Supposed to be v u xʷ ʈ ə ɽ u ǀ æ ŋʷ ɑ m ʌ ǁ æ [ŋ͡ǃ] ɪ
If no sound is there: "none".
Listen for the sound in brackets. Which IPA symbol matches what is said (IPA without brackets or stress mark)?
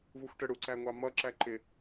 ǃ